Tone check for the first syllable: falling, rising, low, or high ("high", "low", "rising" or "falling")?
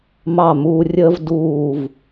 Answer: falling